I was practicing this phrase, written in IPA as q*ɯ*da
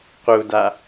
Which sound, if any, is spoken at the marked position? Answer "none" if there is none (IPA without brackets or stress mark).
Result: u